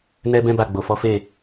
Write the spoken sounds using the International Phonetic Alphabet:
n ɛ˦ b ɛ̃˦ b a˦˨ ɡ͡b o˨ f ɔ˨˦ f e˦˨

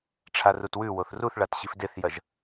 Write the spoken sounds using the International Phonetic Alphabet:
ʈ͡ʂʰ a r u t w ʉ w o θ r u θ ɭ a t ɕ i f d e θ j ɐ ʒ

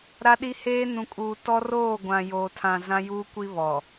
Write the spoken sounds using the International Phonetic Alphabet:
ɾ a˦ ɗ i˦ h eː˦ n ũ˨ kʼ uː˨ t ɔ˦ r oː˦˨ ɡʷ ã˨ j oː˨ tʰ ã˨ z ã˦ j uː˦ kʷ i˦ β ɔ˨

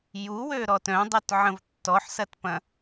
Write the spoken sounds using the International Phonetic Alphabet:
j u w ø ɾ ɔ t œ̃ dˤ y t ʕ ə̃ v tː ɔ ħ s ɐ t p ɐ̃

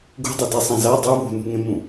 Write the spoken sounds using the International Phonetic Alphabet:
ɡ ṳ dˤ ɛ d ɛ sˤ ã z a dˤ u β ṳ n ṳ ŋ ẽ m ũ

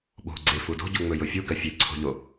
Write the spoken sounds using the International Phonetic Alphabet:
ɓ o̤ ɡ͡ǀ e f u d o̤ ɟ u ŋ͡m ɵ j ʊ fʲ u ɡ ɜ fʲ e ǀʰ o̤ ʎ o

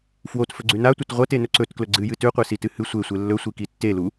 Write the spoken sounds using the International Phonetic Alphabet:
f w o t f ɵ ɡ͡ǀ ʉ n a tʷ ɐ t ʁʷ ɐ t e n ɵ ǀ ɵ t k l ɵ ɡ͡ǀ ɨ j ɨ t ʉ qʷ e s i t ɨ h ɨ sʷ e sʷ e lː ɵ sʷ i k i tː e l u

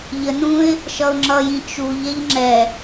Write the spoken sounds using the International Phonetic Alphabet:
ʎ ə n ũ ɪ̯ | ʃ ʌ ʊ̯ ŋ͡ǁ ʌ j ĩ t͡ʃ u ʎ ɛ ʎ ŋ͡ǁ ɛ

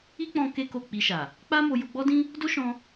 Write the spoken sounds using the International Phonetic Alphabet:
i˦ k͡p ɔ̃˧ k e˦ k o˦˨ k͡p i˧ ʃ a˨ | k͡p a˦ m o˧ j o˧ ɡ͡b ɔ˦ d ĩ˦ | d o˦ ʃ ɔ̃˧

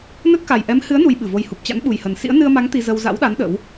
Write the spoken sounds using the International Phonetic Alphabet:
n ə˦˥ t̚ k a˨˩ j ʔ ɛ˨˦ m h ɨ˨˦ ə̯ n u˧ j ɓ ɨ˧˩ v o˧ j h u˨˩ p̚ t͡ɕ a̰˧˥ n ɓ u˨˩ j h ə˨˩ n s ḭ˧˥ ə̯ n ɨ˧ ə̯ m a˨˦ ŋ t̪ i˧ z ə˧ w z a̰˧˥ w ɗ a˨˦ n ɗ ə̰˧˥ w

